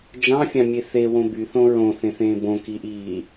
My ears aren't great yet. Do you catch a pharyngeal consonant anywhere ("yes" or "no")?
no